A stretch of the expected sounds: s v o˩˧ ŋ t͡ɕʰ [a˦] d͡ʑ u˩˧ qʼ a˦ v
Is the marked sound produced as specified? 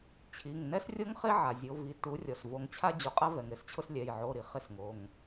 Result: yes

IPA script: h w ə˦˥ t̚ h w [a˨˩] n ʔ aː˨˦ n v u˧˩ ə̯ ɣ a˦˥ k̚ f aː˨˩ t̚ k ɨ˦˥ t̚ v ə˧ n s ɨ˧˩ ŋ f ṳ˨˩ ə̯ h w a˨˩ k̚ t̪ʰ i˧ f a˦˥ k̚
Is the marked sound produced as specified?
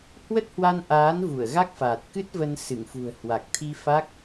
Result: no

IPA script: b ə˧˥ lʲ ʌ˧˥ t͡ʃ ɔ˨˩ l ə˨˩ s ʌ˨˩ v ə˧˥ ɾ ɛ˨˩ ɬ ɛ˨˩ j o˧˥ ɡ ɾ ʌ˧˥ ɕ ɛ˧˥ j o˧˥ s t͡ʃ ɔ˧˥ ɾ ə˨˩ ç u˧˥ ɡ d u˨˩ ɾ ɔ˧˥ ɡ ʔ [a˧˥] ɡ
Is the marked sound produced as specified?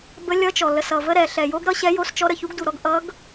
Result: no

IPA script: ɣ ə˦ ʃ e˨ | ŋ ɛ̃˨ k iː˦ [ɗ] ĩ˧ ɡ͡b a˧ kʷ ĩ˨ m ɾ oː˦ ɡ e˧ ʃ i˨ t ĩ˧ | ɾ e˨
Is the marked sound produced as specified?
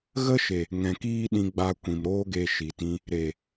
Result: yes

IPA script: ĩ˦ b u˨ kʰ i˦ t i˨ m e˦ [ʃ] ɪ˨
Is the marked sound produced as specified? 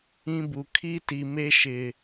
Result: yes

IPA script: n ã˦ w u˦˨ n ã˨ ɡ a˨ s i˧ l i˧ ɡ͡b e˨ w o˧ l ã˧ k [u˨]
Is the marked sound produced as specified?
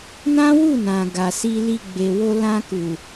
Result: yes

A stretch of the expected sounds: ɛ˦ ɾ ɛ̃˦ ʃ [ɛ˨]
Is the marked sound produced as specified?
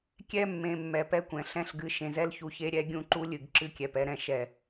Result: yes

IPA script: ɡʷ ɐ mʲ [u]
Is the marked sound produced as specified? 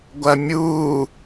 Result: no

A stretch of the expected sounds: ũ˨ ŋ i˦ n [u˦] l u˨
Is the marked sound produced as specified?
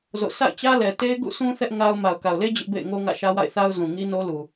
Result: no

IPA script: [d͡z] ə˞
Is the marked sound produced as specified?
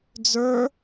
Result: yes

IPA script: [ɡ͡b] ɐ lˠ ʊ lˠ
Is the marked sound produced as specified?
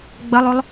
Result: yes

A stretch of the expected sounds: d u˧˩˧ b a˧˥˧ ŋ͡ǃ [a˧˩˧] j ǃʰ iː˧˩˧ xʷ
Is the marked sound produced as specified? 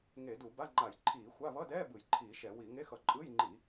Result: yes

